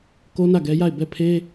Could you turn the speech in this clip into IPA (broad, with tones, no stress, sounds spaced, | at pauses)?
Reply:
k o˦ n ä˦˨ ɡ ɛ˦ j a˦˨ ɪ̯ b ɛ˦˨ pʰ e˦